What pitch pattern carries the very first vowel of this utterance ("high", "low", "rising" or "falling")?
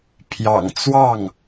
low